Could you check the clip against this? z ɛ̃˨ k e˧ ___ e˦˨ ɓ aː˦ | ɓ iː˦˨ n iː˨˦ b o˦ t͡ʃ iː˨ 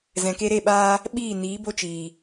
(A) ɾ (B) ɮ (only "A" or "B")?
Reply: A